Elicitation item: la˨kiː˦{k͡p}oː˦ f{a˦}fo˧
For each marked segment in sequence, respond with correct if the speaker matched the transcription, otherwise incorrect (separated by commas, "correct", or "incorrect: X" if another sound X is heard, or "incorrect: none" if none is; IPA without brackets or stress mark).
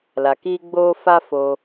incorrect: ɡ͡b, correct